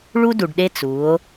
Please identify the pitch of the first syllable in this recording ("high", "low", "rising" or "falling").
high